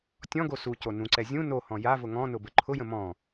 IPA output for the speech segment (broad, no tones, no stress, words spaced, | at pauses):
tʲɔ̃ɡo suco nũǀɛ zʲũ nohɔ̃ javʊ ŋɔ̃nʊbə ǃʰʊjə̃ mɔ̃